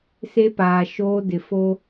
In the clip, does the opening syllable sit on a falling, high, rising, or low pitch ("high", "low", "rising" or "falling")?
high